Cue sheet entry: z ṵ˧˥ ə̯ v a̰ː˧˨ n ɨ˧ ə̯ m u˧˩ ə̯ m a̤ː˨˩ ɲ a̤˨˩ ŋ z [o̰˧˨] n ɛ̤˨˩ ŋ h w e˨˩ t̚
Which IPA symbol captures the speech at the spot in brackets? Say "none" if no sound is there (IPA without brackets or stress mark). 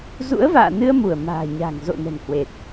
o̰˧˨